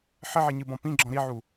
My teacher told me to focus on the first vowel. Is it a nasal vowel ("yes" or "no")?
no